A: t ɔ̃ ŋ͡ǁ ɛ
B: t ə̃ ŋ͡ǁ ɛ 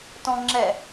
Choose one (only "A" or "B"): A